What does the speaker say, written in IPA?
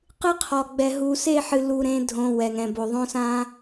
q ɨ˦ qʰ ɔ˨ ɡ͡b ɛ˨ ɦ u˨ s e˦˨ ħ ɨ˨ l u˨ ɾ ẽ˨˦ dʱ õ˨ w ɛ˨ ŋ ɛ̃˨ b o˨ ðˤ õ˦ s ã˦

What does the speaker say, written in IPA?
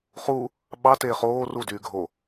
χ u | ɓ ɑ t eː χ oː r u d yː ɡʱ o

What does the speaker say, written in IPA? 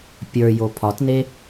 pʲ ə˞ j o pʰ ɒ t n e

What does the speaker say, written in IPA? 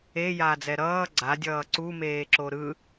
e j aː d͡z ɛ ɾ ʌː ɡ͡ǀ a dʲ ʌː ǀ u m eː ǁ o ɾ ɯ

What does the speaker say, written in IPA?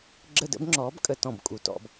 ɡ͡ǁ ə˦˨ d ə̰˨˥ b ŋ͡ǁ ɔː˨˥ b kʼ ə˨˩˦ t ɔ̃˨˩ b kʼ u˨˩ t ɔ̰˦˨ b

